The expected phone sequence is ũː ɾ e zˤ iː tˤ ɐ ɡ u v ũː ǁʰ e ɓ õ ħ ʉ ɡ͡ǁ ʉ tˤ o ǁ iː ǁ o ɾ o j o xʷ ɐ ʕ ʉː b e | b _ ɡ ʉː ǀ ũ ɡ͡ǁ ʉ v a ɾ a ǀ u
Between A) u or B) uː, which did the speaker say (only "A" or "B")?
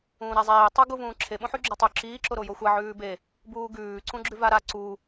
B